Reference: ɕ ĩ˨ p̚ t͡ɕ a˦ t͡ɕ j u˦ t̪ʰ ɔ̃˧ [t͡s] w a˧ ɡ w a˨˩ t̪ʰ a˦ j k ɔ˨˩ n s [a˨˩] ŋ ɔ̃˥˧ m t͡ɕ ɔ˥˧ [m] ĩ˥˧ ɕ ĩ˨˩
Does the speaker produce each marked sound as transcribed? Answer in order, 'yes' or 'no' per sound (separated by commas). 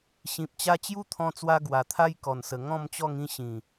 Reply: yes, no, no